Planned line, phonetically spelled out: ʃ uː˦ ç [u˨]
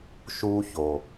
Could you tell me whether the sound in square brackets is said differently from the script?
yes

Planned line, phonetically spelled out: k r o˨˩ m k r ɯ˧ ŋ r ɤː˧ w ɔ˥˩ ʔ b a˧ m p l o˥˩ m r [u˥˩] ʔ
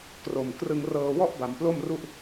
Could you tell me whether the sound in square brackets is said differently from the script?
no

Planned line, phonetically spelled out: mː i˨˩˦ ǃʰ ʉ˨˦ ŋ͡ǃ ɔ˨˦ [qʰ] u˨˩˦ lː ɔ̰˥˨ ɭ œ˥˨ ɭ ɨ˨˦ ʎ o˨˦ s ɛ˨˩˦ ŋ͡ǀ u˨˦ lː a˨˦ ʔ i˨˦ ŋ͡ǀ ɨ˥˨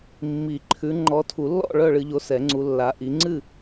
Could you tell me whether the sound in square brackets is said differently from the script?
yes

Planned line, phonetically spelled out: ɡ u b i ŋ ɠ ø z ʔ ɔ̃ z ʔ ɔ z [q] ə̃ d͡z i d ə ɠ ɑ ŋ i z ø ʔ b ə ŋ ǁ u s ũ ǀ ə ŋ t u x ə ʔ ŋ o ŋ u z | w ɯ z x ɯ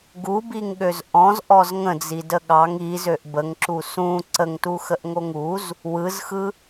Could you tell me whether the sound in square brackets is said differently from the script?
yes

